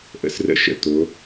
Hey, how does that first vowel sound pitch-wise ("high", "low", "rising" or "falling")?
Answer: high